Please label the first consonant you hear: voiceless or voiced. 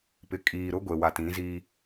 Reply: voiceless